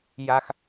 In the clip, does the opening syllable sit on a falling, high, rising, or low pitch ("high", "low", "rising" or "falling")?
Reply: high